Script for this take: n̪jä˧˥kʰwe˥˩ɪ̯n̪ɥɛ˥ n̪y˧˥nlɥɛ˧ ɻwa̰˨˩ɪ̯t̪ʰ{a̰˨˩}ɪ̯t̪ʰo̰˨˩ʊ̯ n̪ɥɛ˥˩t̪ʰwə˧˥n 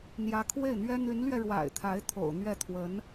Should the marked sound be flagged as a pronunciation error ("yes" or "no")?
yes